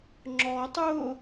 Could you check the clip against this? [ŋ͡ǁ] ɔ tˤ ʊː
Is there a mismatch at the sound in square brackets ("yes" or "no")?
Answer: no